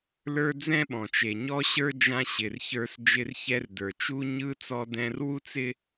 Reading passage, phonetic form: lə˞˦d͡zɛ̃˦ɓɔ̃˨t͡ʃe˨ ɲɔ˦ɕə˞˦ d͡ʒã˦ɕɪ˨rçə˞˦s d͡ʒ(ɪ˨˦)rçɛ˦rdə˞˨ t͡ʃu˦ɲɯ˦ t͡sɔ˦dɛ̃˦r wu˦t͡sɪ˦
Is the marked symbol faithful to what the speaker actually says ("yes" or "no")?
no